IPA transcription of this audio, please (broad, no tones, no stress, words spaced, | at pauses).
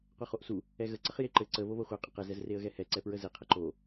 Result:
qʷɛχoʔsu | ɛɣə ǀəχjeǃɘ ǀə βoβoχʷe qʼəqɘ zɛzreə̯ɣɛhɛ ǀɛpɹəze qʰəǃo